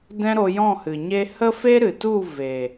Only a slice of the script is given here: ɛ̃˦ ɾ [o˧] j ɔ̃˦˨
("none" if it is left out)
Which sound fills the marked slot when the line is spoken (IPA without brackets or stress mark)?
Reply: o˧